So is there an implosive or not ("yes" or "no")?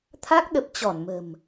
yes